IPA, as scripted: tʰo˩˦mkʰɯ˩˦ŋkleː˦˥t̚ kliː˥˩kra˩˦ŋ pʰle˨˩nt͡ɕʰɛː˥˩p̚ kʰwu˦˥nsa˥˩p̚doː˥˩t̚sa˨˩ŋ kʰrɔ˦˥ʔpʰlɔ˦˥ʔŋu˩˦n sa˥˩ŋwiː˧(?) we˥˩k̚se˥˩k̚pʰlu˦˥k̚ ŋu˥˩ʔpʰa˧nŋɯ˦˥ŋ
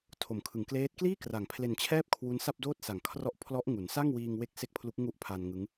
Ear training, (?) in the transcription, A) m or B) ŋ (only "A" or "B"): B